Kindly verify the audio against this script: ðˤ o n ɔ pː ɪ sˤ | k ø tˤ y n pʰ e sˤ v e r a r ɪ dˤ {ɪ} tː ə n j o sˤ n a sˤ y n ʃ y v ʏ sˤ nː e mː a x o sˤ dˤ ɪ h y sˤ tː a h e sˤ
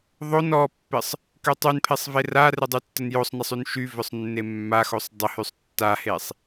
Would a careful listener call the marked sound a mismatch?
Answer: yes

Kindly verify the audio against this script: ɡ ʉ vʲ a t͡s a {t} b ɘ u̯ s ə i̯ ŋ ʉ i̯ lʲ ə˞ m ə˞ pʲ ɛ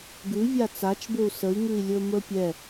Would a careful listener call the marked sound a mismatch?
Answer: yes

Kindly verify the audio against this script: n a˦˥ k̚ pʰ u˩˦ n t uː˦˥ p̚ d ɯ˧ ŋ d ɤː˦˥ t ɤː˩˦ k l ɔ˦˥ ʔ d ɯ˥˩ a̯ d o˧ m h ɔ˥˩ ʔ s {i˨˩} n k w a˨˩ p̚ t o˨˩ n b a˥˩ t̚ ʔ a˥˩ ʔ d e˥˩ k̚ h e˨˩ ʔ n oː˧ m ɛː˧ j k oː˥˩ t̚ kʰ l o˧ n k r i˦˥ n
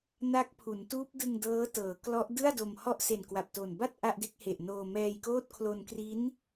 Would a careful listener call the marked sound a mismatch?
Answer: yes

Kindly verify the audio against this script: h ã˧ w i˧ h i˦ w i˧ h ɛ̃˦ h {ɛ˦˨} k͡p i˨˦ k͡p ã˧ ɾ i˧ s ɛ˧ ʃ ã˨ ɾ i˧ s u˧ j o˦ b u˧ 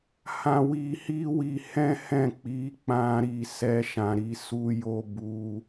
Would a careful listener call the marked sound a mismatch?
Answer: yes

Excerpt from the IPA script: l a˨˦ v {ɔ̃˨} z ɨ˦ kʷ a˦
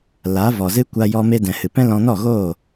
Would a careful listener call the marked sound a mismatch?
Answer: yes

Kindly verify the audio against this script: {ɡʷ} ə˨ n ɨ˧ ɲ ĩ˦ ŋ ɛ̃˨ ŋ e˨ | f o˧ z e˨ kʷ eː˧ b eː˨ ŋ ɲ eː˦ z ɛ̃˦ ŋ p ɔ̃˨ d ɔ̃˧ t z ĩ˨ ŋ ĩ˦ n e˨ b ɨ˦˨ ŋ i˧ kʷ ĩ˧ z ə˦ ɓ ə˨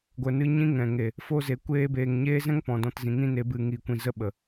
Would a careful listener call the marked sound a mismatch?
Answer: no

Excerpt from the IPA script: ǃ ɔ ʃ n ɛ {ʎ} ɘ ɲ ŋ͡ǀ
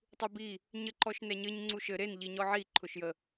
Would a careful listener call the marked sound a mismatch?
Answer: yes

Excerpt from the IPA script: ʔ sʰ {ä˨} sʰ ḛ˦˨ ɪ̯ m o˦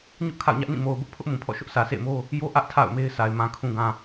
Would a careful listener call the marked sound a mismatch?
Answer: no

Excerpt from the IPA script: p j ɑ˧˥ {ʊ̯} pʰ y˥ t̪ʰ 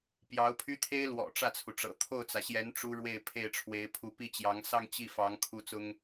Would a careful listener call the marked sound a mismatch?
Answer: no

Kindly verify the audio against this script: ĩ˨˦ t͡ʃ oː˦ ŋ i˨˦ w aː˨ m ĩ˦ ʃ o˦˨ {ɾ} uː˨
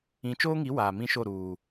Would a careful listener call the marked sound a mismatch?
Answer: no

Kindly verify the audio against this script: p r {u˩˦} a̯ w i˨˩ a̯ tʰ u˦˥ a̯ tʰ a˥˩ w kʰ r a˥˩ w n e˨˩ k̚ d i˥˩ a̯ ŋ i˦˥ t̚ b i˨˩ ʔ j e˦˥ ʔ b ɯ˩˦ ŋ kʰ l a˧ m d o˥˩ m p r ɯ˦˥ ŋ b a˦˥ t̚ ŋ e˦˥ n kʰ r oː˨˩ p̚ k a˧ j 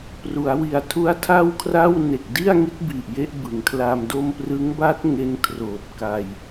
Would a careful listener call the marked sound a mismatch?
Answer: no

